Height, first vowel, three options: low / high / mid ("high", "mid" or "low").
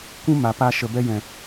high